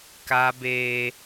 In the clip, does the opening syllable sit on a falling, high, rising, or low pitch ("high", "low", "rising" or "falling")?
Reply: high